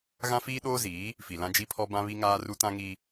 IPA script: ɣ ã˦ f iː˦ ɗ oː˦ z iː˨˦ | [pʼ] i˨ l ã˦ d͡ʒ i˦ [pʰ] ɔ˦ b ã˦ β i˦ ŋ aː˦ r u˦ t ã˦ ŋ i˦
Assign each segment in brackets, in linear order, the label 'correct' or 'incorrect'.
incorrect, correct

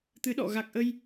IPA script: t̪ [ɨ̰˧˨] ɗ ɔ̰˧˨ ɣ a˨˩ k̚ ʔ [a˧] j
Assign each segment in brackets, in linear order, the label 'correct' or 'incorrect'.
incorrect, incorrect

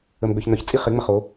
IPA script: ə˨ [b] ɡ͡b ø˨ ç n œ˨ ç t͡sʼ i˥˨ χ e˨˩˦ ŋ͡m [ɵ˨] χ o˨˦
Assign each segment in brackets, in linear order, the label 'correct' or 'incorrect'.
incorrect, incorrect

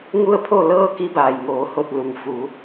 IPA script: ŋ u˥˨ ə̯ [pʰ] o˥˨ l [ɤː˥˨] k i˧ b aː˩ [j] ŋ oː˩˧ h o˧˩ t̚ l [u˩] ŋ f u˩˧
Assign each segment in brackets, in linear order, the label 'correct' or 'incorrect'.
correct, correct, correct, correct

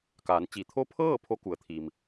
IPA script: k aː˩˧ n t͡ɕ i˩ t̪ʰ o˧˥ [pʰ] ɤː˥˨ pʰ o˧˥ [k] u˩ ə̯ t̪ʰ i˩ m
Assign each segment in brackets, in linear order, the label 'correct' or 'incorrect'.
correct, correct

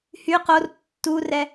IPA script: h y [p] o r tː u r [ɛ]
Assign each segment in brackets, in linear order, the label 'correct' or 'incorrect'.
incorrect, correct

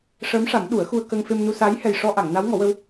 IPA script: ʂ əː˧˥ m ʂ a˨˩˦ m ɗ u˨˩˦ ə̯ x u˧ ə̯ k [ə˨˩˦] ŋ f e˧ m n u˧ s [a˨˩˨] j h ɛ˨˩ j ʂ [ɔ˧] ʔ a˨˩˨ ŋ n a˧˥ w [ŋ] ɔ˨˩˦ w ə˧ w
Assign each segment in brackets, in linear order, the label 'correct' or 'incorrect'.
incorrect, incorrect, correct, correct

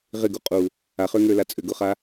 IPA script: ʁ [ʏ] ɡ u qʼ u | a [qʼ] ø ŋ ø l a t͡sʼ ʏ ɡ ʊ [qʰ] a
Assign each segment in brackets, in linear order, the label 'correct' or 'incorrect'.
incorrect, incorrect, incorrect

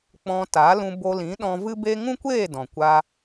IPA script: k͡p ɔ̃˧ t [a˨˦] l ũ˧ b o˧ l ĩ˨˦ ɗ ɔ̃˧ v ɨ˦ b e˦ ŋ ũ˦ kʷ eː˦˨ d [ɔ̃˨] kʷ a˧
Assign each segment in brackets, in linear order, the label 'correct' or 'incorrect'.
correct, correct

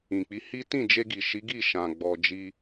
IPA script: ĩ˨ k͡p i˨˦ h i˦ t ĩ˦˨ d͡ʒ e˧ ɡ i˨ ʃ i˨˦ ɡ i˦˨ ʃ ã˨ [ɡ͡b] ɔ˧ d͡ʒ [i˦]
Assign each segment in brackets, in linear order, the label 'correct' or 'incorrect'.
correct, correct

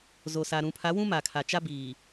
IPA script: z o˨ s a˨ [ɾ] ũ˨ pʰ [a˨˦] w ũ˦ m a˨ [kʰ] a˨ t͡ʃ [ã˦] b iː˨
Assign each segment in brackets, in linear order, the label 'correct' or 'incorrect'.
correct, correct, correct, incorrect

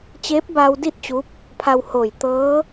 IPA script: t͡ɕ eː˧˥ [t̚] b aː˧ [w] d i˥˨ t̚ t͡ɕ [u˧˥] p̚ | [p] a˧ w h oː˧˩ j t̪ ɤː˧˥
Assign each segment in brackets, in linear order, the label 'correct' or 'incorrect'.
incorrect, correct, correct, incorrect

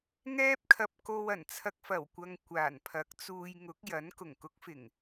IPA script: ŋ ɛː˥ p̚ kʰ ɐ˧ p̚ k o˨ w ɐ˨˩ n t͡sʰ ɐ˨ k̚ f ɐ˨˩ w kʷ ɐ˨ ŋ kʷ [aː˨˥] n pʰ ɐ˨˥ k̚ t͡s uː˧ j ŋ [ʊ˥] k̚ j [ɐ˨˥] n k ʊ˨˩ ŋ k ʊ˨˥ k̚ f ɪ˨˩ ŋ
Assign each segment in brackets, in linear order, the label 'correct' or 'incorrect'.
incorrect, incorrect, correct

